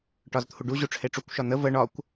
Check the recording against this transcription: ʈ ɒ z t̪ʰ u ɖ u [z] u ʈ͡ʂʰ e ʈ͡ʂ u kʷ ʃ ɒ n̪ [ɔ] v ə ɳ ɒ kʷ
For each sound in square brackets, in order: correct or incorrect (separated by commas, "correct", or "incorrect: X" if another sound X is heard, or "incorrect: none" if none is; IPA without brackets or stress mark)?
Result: incorrect: ʑ, incorrect: ə